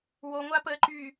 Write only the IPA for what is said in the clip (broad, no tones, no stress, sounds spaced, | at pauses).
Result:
w o ŋʷ a p əː ǃ y